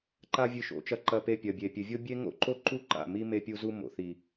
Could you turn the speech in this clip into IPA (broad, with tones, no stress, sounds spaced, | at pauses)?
ǃ a˦ vʲ ɨ˧ ʃ o̰˨˦ t͡ʃ ɐ˧ ǃ ɐ˧ p e˧ pʲ ɐ˨ bʲ e˨ pʲ ɨ˨ vʲ o˦ bʲ e˦ ŋ o̰˦ ǃ o˦ ǃ u˦ ǃ a̰˦˨ m i˦ m e˧ pʲ u˧ z u˧ m o̰˨ θ i˨